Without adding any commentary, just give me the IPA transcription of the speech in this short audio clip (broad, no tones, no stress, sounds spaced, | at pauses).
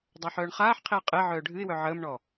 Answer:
dˤ a ħ œː ɳ χ aː ħ qʰ i ə̯ qʼ e ʕ œː ɖʱ ɨ ɪ̯ w œ ʕ əː m ɳ ɔ